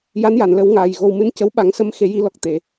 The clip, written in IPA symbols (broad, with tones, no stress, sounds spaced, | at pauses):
j a˧˥ n j a˨˩˨ n l ə˨˩˦ w ŋ aː˨˩ j ɣ o˨˩ w m ɨ˧ n c ə˧˥ w ɓ a˨˩˦ ŋ s ə˧ m x e˨˩˦ j i˨˩˦ l ɔ˨˩ k̚ t̪ e˨˩˨